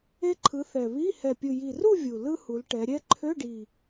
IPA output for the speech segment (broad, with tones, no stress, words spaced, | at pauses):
e˥ǃʰɯ˨˥θɛ˨˩ βi˧˥˧ hɛ˨˩pʲɯ˨˩ji˨˩ru˥˧ vʲu˨˩ lɯ˥ hu˩˧lʈɛ˩˧ ɾʲɛ˥ ǃʰø˧˥˧ɖi˨˩